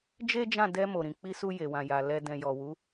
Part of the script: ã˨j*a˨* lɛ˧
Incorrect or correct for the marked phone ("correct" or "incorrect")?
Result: correct